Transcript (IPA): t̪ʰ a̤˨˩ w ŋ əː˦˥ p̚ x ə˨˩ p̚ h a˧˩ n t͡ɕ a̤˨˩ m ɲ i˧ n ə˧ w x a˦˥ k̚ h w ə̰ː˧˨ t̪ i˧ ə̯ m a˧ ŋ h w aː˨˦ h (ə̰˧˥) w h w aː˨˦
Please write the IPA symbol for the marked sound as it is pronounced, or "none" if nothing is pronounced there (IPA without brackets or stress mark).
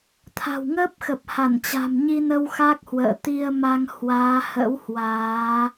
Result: ə̰˧˥